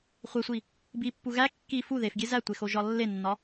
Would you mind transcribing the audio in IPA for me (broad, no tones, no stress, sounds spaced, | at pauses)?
χʷ e sʷ i | b i pː u ɣ æ kː i f u ð e f ɡʲ e z æ tʷ e x o ʒ ɒ lː e nː ɒ